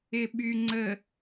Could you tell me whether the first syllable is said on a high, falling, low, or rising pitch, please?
low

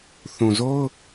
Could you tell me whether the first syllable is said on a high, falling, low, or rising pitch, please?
low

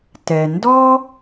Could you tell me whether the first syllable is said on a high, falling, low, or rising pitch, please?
low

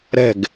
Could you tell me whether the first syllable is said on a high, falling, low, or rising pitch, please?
falling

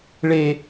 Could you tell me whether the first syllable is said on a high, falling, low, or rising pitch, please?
high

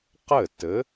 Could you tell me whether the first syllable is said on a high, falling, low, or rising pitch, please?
falling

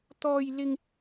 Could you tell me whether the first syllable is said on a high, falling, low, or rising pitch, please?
high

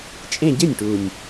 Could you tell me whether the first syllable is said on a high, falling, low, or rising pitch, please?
falling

